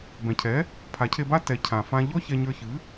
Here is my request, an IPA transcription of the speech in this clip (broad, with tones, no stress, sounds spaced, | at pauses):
b ɛ̃˩ cʰ ɛ˩˥ | pʰ a˩˥ cʰ e˧ b a˥ t ɛ˩˥ cʰ ã˩ f ã˧ ʎ ɔ˥ ç ɛ˧ ɲ ə˞˧ ç ɨ˩˥